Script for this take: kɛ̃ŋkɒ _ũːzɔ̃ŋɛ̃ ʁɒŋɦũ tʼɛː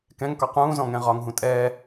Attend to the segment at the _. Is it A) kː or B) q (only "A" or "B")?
B